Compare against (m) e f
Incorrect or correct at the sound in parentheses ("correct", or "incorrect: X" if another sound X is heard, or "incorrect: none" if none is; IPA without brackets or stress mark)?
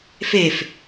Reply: incorrect: f